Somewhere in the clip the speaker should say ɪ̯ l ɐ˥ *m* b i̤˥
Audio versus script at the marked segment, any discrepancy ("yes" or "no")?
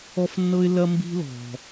no